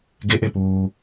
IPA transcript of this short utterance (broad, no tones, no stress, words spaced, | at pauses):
ɡeʔepuː